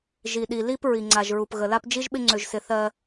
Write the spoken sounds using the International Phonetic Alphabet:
ʒ i˨ ɗ i˨ l i˦ p ɹ i˨ ŋ͡ǀ a˨ ʒ ɹ u˨ p ɣ ə˨ l a˦ p d͡ʒ i˦ ʒ ɓ ɪ˦ ŋ͡ǀ ø˨ ʒ s ɪ˨ θ ɜ˦

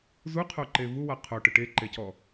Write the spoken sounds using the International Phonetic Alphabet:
z u qʰ o ǃ e v u w a qʰ o ʈ ɯ ʈ e ǃ e c ɔ

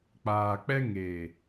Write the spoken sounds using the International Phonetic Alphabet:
k͡p aː˨ k͡p ɛ˦ ŋ e˨

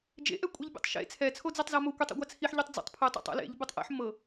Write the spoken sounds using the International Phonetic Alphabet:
d͡ʒ ḛ ʔ ɛ kʷʼ i ʎ bʲ ḛ tˤ ʃ ḛ t͡sʰ ɛ t͡sʰ o d͡z e tˤ z a m o kʷ ɛ tˤ ɛ̰ ɡʷ a t͡sʰ i ħ ʎ ɤ tˤ d͡z ɛ̰ tˤ pʰ ɯ tˤ ḛ tˤ ɛ̰ l ḛ ʎ b ɯ tˤ ʔ ḛ ħ m ɤ

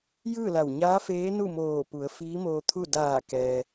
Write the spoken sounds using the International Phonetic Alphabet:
j ɯː˥˨ l a˧˩ w ɲ aː˧˥ f eː˧˥ n u˥˨ m oː˧˩ p u˩˧ ə̯ f iː˧˥ m oː˧ t̪ʰ u˥˨ d aː˧˩ k ɛː˩

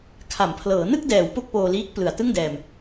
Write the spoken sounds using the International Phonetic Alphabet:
kʰ a˩˦ m pʰ l ɤː˩˦ n ɯ˥˩ k̚ d ɛː˩˦ w p o˥˩ k̚ p oː˧ l iː˦˥ k̚ p l ɯ˨˩ a̯ t ɯ˥˩ ŋ d ɛː˧ m

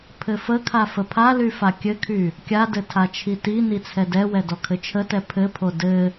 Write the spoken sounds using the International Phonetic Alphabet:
pʰ ɘ f ə kʰ a f ə pʰ a l y f a kʲ ɘ kʰ y | kʲ a d ɘ tʰ a t͡ʃʰ i t i n i t͡sʰ ɛ d ɛ w ɛ d ɔ kʰ ɘ t͡ʃʰ ə t ɛ pʰ ɘ pʰ o d ɘ

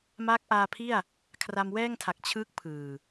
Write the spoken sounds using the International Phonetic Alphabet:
m a˦˥ k̚ ʔ aː˧ pʰ i˥˩ a̯ | kʰ r a˧ m w ɛː˥˩ ŋ tʰ a˨˩ k̚ t͡ɕʰ ɯ˦˥ k̚ pʰ ɯː˨˩

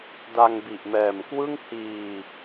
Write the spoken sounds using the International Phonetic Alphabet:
d a˧ ŋ b i˨˩ ʔ m ɛː˨˩ m k w ɯ˥˩ ŋ h iː˧

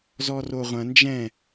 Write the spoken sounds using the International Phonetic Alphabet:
z ɔ r o ʁʷ ɐ̃ n d͡ʒ ɛ̃

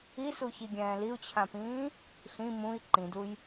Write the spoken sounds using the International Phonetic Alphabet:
i s u ç i ɡʲ ɛ̃ː l i u̯ t͡ɕʰ ã p ĩː | ɬ ĩ m ũ i̯ ǃ ĩ d u j

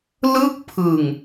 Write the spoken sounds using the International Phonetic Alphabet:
l ɯ˥˩ k̚ pʰ ɯ˨˩ ŋ

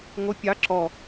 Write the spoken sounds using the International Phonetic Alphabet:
ŋʷ ə pʲ ɑ ǁ ɔ

